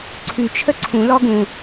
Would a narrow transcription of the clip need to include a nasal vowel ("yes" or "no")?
yes